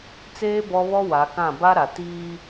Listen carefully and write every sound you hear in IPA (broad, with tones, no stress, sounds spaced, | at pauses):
t͡s eː˦ b ɔ˦ β ɔ˦ w a˨˦ k ã˦˨ b a˦ ɾ a˨ t iː˦